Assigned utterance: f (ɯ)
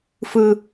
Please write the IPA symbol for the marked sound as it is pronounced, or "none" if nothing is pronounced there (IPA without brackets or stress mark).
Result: ɯ